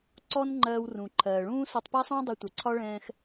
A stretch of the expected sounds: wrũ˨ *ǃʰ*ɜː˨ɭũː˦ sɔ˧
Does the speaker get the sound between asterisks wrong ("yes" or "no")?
no